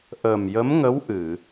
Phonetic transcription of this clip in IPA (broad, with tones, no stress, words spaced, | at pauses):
ʔəː˨˩mjə˧˥m ŋə˧˥wʔɨ˨˩˨